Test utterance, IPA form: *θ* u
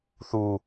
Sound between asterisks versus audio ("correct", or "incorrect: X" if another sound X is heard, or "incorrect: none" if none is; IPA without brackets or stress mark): correct